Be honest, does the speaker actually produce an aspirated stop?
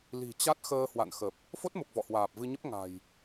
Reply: no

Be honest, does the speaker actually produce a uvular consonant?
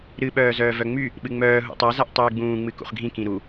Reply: yes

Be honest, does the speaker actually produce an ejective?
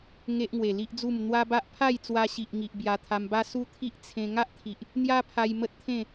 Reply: no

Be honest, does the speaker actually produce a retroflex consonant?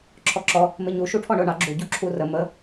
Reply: yes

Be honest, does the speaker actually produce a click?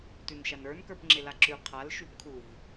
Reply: yes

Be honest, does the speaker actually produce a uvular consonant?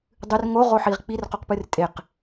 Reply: yes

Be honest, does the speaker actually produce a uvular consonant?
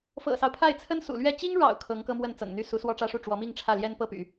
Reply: no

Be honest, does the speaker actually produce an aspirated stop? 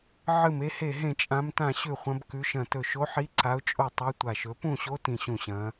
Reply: no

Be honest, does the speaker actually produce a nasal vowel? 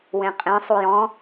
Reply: yes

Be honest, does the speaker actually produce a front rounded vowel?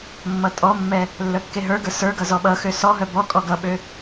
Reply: yes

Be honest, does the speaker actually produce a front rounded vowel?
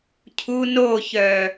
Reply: yes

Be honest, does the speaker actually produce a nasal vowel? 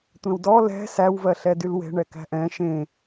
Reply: yes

